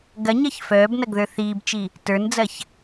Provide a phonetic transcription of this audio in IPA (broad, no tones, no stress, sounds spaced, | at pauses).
ɡ ɐ ɲ ɐ ç f œː b n ɐ ɡ ð ə˞ θ iː b t͡ʃ i | t ə˞ n d͡z ɐ ç